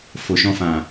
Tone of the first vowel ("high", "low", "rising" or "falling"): low